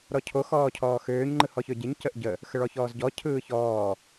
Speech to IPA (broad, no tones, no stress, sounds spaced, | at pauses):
ɾ ɔ cʰ o x ɔː cʰ ɔː x øː ɲ ŋ͡ǃ ɯ h ɔ ç ø ɟ e ɲ c ə ʔ ɟ ə | x ə ɭ ɔ ç ɔː z ɟ ɔ cʰ ɯː ç ɔː